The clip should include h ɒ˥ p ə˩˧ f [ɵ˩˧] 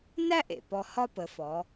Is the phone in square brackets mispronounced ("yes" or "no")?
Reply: yes